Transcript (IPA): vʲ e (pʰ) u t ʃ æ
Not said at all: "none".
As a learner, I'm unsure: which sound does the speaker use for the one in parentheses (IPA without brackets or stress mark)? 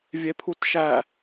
pʰ